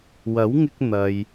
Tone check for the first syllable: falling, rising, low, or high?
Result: rising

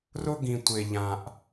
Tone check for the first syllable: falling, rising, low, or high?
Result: high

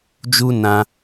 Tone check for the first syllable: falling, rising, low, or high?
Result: high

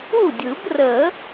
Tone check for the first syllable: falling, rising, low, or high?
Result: falling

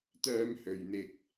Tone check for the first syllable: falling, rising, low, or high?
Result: high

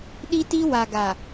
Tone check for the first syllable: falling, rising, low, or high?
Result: high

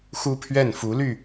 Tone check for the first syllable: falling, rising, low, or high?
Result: high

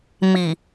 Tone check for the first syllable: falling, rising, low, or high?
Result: low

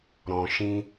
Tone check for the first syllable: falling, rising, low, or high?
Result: low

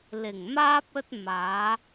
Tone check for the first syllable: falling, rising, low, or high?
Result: low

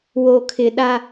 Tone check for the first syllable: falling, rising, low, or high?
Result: low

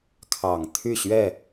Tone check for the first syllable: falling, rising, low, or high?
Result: low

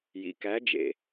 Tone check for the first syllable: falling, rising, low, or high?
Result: low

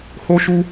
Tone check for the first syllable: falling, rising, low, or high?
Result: high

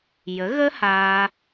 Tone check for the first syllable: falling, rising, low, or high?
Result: rising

